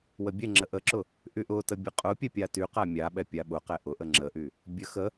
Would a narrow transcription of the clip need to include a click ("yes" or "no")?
yes